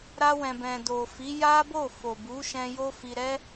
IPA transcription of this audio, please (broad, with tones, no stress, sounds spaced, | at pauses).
ɾ a˧ w ɛ̃˨ b ɛ̃˨ d o˨ f i˨˦ j a˦ b o˦˨ f o˨ b u˨˦ ʃ ɛ̃˧ j o˦ f i˧ ɾ ɛ˦